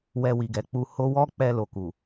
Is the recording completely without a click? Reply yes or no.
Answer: yes